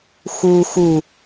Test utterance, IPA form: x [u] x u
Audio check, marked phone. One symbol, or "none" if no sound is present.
u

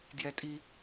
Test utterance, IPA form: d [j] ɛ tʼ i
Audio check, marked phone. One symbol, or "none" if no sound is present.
j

